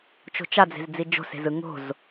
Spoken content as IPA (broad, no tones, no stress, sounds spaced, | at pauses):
t͡ʃ o̤ t͡ʃ a d͡z e̤ z d͡z i d͡ʒ o̤ s e̤ z ɯ ŋ o̤ z